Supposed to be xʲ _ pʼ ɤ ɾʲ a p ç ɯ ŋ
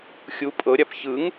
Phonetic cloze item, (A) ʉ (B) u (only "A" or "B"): B